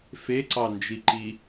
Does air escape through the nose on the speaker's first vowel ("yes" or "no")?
no